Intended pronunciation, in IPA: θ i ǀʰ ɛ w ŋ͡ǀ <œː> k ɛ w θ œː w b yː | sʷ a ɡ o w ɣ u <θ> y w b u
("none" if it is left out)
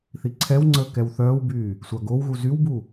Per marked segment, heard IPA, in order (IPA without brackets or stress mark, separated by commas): əː, z